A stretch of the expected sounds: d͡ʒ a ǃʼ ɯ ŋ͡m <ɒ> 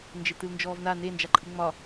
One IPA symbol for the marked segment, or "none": ɒ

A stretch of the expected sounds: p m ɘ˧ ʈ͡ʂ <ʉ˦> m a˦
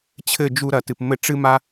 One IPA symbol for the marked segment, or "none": ɨ˦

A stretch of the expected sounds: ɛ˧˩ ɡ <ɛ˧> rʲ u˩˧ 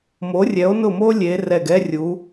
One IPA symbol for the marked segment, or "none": ɛ˥˧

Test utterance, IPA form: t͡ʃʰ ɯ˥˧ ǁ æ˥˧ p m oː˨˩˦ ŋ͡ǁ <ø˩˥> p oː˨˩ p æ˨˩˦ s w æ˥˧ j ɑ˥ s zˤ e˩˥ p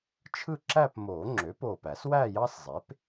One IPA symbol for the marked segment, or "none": ø˩˥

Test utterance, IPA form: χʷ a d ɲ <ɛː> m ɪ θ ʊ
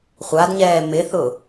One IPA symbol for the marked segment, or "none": ɛː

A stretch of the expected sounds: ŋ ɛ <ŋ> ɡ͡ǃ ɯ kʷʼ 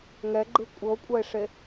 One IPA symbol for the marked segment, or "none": none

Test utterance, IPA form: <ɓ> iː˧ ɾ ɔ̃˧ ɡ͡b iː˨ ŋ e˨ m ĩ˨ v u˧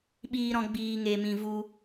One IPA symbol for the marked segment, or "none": ɓ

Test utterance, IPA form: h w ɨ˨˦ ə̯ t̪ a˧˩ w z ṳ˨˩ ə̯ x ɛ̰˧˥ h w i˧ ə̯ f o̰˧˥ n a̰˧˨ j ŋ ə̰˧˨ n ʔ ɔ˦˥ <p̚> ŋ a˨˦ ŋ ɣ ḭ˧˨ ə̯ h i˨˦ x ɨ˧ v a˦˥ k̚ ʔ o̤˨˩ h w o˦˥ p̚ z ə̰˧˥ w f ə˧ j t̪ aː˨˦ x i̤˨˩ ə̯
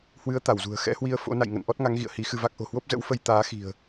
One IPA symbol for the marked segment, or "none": t̚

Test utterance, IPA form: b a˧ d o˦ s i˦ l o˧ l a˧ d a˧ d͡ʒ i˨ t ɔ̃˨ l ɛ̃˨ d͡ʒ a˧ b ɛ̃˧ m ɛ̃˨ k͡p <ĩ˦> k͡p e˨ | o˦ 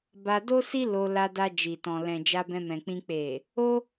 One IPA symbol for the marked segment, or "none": ĩ˧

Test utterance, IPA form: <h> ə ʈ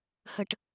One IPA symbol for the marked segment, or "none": h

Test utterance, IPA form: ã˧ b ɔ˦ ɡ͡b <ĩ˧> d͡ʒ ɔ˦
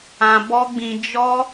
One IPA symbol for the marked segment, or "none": ĩ˧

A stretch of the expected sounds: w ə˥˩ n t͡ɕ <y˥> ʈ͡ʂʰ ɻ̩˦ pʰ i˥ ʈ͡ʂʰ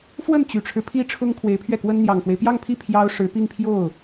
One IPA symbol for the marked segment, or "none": y˨˩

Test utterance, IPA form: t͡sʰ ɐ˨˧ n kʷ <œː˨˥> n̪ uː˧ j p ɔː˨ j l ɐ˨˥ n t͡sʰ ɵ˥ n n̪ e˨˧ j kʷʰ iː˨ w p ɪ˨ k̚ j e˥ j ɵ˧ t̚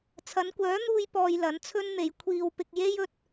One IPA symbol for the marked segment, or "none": œː˨˥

